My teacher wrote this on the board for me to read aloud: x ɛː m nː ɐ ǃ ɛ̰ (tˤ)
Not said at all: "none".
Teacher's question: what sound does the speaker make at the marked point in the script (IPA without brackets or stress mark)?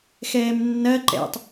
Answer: tˤ